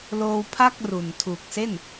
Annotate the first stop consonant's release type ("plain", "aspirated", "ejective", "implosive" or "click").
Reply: aspirated